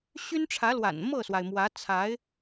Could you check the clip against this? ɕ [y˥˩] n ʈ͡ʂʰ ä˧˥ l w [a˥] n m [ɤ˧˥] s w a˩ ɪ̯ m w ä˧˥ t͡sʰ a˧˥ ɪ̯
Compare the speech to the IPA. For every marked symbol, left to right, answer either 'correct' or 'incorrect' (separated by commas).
incorrect, incorrect, incorrect